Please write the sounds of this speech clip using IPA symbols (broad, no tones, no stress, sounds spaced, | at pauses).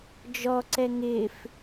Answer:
d͡ʒ ɔ ǀ ɛ ŋ ɪ f